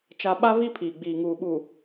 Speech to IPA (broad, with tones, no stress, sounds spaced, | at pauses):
t͡ʃ a˦ ɓ a˦ v i˦ pʰ iː˨ ɡ͡b iː˨ ŋ uː˨ ɓ uː˨